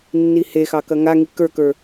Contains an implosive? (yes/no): no